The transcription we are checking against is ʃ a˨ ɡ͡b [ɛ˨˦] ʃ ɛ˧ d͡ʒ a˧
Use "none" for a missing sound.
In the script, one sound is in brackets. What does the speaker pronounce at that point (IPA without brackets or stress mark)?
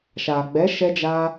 ɛ˨˦